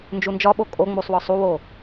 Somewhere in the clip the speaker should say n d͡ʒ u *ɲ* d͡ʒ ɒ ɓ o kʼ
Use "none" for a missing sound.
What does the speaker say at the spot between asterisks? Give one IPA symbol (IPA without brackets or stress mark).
n